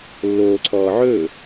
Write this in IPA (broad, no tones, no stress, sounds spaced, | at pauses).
lː oː ǀʰ ɔː ʕ ɵː